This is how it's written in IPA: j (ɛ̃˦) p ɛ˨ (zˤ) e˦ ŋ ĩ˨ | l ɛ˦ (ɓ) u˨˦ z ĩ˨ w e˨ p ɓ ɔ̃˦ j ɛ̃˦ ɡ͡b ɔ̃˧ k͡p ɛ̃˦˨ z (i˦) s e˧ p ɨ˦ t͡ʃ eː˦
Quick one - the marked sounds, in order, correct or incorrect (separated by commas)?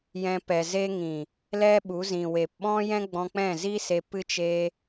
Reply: incorrect, incorrect, correct, correct